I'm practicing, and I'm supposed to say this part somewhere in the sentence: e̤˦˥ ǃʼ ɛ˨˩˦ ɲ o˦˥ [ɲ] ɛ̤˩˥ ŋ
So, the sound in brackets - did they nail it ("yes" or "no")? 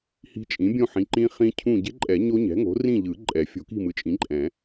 yes